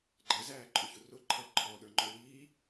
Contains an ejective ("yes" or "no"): yes